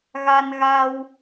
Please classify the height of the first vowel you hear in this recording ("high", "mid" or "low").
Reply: low